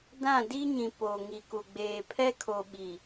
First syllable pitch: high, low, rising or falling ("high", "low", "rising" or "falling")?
falling